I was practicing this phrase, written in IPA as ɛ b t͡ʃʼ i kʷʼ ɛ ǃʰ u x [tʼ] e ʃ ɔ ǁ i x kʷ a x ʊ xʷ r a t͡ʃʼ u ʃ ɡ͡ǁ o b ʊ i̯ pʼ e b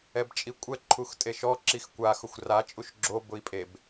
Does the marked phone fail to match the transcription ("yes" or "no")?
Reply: no